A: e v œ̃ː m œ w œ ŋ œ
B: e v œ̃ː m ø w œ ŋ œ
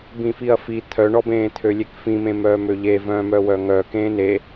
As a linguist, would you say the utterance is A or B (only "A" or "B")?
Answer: A